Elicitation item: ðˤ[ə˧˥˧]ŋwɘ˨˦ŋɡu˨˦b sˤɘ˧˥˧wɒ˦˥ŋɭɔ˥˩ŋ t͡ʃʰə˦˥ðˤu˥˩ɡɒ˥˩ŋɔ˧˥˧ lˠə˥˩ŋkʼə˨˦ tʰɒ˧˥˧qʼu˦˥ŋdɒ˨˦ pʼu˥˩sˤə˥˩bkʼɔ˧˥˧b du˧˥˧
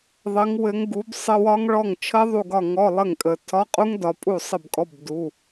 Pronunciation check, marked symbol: incorrect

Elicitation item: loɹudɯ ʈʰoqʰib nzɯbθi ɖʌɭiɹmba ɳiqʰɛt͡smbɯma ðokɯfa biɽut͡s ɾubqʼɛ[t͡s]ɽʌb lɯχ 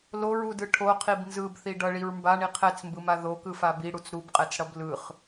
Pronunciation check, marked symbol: correct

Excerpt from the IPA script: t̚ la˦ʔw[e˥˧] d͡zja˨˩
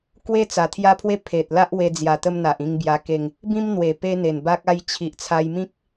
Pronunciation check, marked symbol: incorrect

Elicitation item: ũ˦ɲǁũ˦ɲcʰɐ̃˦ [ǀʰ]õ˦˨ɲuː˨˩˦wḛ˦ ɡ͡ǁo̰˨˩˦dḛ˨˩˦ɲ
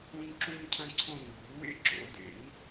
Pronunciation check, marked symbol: correct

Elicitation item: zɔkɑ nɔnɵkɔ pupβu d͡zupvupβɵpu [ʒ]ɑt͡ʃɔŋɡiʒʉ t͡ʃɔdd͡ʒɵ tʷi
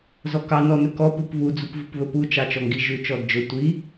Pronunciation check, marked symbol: incorrect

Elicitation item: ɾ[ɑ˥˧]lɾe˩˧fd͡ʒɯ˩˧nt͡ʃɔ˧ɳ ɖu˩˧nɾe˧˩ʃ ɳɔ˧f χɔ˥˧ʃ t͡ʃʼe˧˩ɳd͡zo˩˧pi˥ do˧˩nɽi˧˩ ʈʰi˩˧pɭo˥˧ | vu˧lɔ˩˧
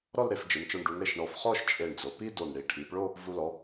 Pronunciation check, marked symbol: incorrect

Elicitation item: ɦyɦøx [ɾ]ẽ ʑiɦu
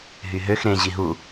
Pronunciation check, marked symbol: correct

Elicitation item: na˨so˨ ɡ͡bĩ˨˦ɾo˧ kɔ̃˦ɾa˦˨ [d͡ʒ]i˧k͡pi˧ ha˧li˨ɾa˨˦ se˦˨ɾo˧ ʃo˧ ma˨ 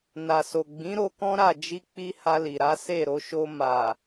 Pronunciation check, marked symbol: correct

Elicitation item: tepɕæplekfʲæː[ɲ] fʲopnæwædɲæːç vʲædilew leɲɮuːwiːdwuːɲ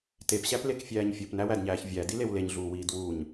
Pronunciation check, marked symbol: correct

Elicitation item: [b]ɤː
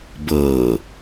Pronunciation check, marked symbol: correct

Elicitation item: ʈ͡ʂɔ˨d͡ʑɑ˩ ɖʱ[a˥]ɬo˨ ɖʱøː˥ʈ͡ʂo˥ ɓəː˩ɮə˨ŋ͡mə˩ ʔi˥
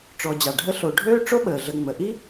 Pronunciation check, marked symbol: incorrect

